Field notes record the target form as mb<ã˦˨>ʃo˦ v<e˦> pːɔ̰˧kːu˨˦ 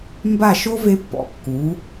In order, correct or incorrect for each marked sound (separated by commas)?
incorrect, correct